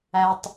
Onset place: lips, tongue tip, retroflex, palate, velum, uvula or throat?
tongue tip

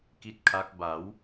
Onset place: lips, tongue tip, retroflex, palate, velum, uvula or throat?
velum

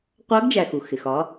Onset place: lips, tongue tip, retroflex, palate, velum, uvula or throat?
uvula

